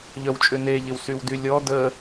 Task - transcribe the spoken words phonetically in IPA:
ʎ œ w t͡ʃʼ ʏ n e ʎ ɪ w s y w d y lʲ ɔ d ə

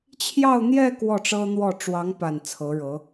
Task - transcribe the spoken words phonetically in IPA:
t͡ɕʰ j ɑ˥˧ ʊ̯ n̪ j ɛ˥˧ k w ɔ˥˩ ʈ͡ʂ ɤ˥ n̪ w ɔ˥˩ ʈ͡ʂ w ɑ˧˥ ŋ p a˨˩ n t͡sʰ ɤ˧˥ ɻ ɤ˧˥

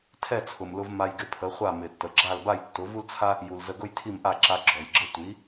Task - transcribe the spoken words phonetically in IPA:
tʰ ɛ˥˩ t͡sʰ ʊ˩ m l ʊ˧ v m a˧ j ɡ ɪ˧ pʰ ə˩˥ χʷ a˥˩ m ɪ˩ tː ə˩ ɡ͡ǁ a˥˩ l b a˥˩ j tː ʊ˩˥ v u˥ l t͡sʰ a˥ | j u˩ l z ə˧ ɡ ʊ˥ j tʰ i˥˩ m ʔ a˥˩ ǁ a˧ ɡ͡ǁ ɔ˩ j ɡ͡ǁ ə˥ tʷ i˩˥

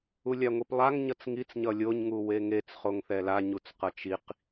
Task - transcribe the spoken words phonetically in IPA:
u lʲ a ŋʷ i p lˠ a ŋ ɲ ʌ t͡s ŋ i t͡s ɲ ʌ lʲ o ɲ ŋ u w e ŋ e t͡s χ o ŋ θ ɛ l a ɲ u t͡s q ʌ t͡ʃ i q

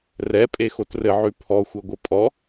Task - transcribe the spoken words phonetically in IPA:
r ɛ pʼ e x o t r ɘ ʕ ʉ pʰ ɔ xʷ ɛ ɡʷ ɘ pʼ ɔ

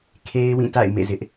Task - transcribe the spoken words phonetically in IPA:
kʰ e˦ ɪ̯ w ĩ˦˨ t a̰˦˨ ɪ̯ m ḛ˦˨ z ɪ˦ ʔ

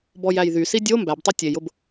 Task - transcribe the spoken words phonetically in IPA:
b ɔ j æ j ð y s i dʲ o m b æ b tˤ y tʲ e j ʊ b

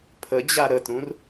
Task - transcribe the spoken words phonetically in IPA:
pʰ ə d͡ʑ a ɾ ə t ɾ ũ r

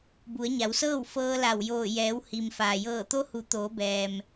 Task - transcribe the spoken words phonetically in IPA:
b u˩˧ ə̯ ɲ a˩˧ w s ɤː˥˨ w f ɤː˧ l a˧˩ w j oː˧˩ j ɛː˩˧ w h i˩ m f aː˩ j ɤː˧˩ t̪ o˧˥ h u˩˧ t̪ oː˩˧ b ɛː˩ m

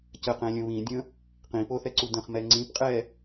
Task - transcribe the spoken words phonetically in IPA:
c ə q ɛ̃ lʲ ə̃ β ĩ dʲ ə̃ | q ĩ p o θ ɛ ǀ u d ə̃ χ m ɛ ŋ͡ǀ ĩ p qʼ ɛ

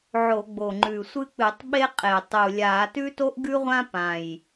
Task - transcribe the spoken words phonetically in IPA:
ʕ o˧˩˧ ɡ͡b o˨˩ ŋ͡ǃ ʉ˨˩ sʷ ɨ˥ k͡p ɨ˧˩˧ tˤ ɓ e˥ qʼ e˨˩ tˤ u˨˩ lʲ aː˧˩˧ t ʉ˥ t o˥ ʔ ɡ ʉ˥ ʁʷ ã˥ p ã˨˩ j

